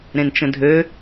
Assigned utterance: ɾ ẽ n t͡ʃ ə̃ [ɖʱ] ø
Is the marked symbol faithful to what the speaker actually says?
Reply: no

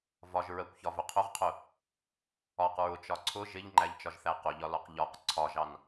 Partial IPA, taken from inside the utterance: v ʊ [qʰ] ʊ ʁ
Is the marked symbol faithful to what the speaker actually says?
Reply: yes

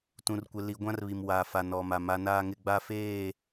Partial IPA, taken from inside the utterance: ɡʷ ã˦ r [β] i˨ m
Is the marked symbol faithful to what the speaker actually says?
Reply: yes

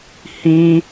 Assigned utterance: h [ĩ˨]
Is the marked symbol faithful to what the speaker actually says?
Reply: no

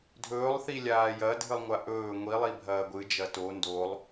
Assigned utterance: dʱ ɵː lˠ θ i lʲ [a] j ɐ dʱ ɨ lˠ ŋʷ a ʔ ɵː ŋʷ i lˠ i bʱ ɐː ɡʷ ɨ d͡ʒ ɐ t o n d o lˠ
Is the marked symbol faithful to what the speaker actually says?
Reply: no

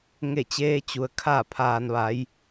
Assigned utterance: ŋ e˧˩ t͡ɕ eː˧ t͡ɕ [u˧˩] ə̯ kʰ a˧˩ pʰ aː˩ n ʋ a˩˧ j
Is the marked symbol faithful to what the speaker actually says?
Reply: no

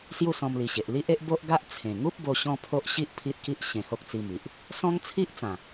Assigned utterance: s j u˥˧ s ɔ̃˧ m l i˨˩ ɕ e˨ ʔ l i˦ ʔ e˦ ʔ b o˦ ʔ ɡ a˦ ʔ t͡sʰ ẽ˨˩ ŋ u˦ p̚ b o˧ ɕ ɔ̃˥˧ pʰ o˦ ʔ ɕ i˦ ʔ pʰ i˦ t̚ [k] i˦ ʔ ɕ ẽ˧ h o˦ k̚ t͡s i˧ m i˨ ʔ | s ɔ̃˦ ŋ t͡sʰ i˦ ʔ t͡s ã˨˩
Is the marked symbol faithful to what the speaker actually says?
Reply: yes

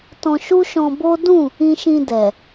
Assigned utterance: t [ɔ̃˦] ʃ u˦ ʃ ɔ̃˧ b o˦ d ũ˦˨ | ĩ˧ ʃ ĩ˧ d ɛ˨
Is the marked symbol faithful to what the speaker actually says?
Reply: no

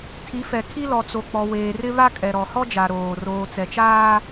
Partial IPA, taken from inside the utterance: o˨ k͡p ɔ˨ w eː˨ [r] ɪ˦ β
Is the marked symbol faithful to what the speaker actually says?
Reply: yes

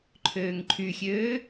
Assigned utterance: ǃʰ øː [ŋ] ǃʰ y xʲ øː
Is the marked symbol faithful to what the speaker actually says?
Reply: yes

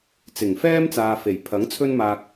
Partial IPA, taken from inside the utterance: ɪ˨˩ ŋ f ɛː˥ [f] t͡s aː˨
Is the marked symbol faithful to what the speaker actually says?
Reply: no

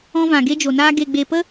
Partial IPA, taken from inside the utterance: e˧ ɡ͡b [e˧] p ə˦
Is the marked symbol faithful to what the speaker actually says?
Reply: yes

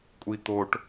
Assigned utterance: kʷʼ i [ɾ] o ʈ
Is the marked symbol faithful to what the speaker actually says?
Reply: no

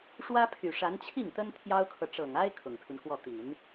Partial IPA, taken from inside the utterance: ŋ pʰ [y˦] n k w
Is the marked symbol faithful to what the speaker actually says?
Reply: yes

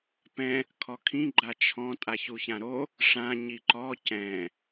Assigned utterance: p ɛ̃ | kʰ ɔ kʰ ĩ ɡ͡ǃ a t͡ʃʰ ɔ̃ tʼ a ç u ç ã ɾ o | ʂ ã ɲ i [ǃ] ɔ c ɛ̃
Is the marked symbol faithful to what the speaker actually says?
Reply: yes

